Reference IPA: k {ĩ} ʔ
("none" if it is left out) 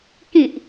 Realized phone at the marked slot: ĩ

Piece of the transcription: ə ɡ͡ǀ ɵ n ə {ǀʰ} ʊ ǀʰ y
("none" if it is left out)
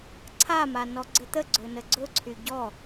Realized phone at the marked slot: ɡ͡ǀ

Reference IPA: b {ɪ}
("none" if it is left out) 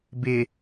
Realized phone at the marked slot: ɪ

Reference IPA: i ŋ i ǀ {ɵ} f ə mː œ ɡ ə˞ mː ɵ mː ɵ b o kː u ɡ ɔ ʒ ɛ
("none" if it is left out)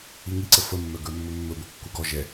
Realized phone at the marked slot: ə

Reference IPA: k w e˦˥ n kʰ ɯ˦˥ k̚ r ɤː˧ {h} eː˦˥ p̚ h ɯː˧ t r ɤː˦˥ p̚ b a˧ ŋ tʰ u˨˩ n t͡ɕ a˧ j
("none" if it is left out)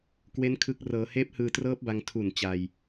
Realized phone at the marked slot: h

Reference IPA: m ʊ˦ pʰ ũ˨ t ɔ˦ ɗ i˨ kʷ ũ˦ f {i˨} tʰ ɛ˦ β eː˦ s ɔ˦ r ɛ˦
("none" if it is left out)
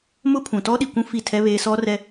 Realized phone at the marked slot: i˦˨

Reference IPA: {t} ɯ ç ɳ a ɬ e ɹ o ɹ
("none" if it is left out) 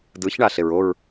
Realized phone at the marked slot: d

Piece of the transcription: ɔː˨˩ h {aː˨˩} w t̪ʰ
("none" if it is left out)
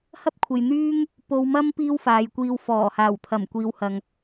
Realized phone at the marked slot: aː˨˩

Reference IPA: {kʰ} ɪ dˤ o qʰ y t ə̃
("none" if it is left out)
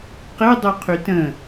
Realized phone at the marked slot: q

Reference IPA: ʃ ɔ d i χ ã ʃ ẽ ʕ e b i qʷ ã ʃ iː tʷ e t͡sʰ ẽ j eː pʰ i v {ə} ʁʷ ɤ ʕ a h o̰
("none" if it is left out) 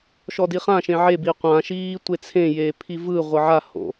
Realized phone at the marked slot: ɯ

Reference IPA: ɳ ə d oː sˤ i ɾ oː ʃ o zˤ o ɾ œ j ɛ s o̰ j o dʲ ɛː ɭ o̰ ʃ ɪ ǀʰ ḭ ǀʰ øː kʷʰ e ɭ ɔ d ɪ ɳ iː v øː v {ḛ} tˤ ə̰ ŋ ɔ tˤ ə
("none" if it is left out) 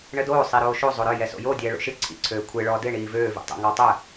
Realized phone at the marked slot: ḭ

